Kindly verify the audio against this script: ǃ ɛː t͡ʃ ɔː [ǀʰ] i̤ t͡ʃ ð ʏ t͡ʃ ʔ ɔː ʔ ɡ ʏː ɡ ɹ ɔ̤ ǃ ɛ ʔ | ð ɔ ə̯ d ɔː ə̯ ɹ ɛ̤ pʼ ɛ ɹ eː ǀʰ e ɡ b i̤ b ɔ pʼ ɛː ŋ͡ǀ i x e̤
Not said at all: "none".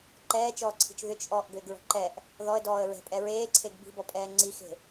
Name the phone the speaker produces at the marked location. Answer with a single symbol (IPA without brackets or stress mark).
ǀʰ